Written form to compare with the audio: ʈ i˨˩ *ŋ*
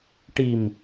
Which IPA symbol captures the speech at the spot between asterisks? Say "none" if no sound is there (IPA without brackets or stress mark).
m